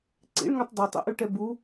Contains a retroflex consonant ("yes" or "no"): yes